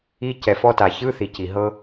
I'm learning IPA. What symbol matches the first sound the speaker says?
i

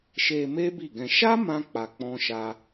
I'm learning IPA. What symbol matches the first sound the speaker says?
ʃ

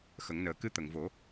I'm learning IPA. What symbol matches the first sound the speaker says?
x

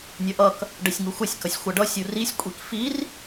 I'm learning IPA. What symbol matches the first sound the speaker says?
nʲ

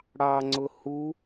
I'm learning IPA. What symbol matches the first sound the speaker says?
ɽ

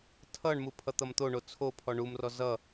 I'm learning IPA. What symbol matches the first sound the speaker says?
tʰ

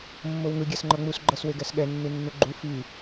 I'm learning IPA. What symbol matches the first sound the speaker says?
mː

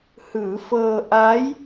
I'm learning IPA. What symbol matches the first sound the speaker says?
h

